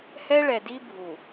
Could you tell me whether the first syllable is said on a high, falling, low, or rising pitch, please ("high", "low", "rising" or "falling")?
high